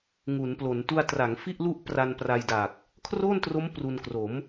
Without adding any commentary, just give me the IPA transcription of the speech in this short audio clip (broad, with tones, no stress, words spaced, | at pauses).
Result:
ŋu˩˦nplo˩˦n tu˧a̯tra˩˦ŋ fi˥˩ʔlu˥˩ʔ pra˧npra˧jdaː˨˩k̚ | kʰroː˥˩ntro˦˥m pru˧nkro˩˦m